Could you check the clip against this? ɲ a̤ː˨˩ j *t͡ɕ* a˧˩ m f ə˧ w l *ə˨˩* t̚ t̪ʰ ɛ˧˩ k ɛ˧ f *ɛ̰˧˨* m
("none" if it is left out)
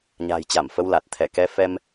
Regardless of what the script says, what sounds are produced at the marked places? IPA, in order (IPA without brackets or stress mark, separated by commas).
t͡ɕ, a˨˩, ɛ˧